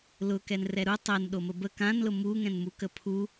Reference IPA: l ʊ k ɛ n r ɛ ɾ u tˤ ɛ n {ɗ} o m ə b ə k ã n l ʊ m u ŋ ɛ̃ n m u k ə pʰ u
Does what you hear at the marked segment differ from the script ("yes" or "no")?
no